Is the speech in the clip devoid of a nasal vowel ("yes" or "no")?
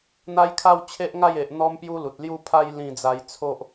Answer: no